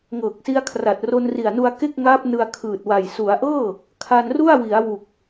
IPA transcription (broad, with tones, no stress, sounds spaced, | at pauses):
ŋ ɤː˨˩ k̚ s i˧ a̯ kʰ r a˨˩ t̚ r o˧ n r i˨˩ a̯ n u˧ a̯ k e˥˩ k̚ ŋ aː˦˥ p̚ n ɯ˧ a̯ kʰ ɯː˨˩ t̚ w a˨˩ j s u˩˦ a̯ ʔ ɤː˥˩ | kʰ a˧ n r u˥˩ a̯ w i˩˦ a̯ w u˨˩ k̚